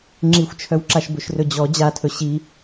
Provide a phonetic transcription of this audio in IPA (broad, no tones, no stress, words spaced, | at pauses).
ŋ͡ǁixʷt͡ʃʰœwǁaʃ bɵʃrɵd͡ʑɔ d͡ʑatʰɵ ɕi